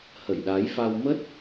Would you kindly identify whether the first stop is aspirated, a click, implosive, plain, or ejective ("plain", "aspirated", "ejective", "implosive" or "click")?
implosive